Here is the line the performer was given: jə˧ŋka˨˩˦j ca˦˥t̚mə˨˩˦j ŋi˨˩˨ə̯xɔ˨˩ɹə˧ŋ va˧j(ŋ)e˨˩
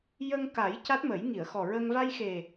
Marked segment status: incorrect: x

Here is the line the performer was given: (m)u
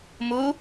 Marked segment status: correct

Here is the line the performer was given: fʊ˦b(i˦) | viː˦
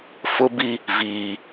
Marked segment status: correct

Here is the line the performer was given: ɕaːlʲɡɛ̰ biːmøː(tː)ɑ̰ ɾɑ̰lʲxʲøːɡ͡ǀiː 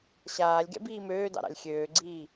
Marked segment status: incorrect: d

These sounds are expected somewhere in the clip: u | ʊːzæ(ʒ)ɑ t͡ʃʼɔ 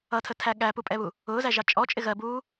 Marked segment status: correct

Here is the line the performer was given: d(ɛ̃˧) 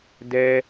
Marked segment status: incorrect: ɛ˧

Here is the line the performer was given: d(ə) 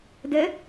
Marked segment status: correct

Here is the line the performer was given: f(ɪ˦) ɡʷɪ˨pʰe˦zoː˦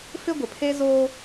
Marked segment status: correct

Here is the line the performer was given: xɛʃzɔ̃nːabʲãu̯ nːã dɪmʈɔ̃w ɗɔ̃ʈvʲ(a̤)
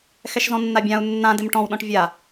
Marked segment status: incorrect: a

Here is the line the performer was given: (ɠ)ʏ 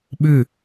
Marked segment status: incorrect: ɓ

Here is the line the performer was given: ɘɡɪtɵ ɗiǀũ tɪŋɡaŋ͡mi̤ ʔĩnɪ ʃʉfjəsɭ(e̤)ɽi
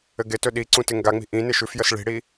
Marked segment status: incorrect: i̤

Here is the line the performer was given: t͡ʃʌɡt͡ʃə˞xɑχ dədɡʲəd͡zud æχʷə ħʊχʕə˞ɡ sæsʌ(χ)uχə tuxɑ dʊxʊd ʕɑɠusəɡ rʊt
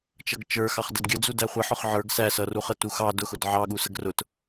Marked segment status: incorrect: r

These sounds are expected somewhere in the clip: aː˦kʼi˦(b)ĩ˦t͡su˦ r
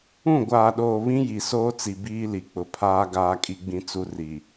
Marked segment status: incorrect: ɡ͡b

